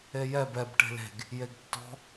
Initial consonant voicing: voiced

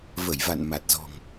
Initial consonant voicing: voiced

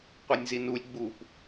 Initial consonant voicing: voiceless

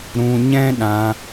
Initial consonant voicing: voiced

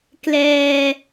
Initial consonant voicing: voiceless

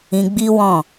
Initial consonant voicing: voiced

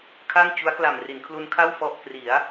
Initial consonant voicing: voiceless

